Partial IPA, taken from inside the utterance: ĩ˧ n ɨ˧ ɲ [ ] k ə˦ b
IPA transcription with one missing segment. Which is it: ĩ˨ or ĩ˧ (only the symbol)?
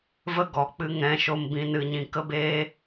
ĩ˧